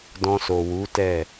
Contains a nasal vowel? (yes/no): yes